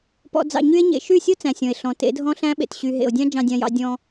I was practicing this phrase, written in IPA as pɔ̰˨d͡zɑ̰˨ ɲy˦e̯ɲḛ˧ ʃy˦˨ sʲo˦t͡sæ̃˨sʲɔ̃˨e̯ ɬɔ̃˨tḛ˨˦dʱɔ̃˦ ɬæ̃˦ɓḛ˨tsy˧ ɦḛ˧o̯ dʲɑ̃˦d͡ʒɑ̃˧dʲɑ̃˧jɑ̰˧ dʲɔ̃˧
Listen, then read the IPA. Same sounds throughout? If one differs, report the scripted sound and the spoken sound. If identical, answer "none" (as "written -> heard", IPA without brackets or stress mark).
s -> ɕ